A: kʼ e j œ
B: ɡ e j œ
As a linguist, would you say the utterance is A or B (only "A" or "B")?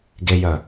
B